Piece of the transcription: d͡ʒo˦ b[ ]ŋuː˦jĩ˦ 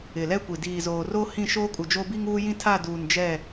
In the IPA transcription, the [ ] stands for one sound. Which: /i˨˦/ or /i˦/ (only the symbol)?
i˦